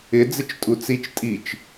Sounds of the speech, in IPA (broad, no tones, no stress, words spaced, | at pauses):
ɪ d͡zɪt͡ʃtʼut͡sit͡ʃ tʼit͡ʃ